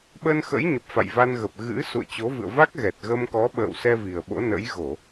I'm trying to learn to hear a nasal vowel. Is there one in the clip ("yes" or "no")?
no